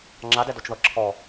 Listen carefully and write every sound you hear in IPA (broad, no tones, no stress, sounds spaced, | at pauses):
ŋ͡ǁ a d ɛ d o t͡ʃ ð ɤ ǁʰ ɔ